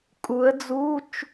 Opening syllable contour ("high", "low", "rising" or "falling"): rising